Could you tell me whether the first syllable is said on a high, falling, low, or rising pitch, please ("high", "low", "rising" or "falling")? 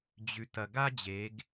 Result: rising